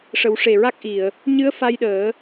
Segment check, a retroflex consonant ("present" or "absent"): present